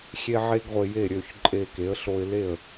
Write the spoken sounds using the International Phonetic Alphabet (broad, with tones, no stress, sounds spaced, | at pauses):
xʲ e˥ ʕ e˥ ɡ ʁʷ e˧ j e˥˩ ɾʲ ø˥˩ ç ǃʼ e˧ k e˩˥ ə̯ ɬ o˧ ɪ̯ l e˥˩ ə̯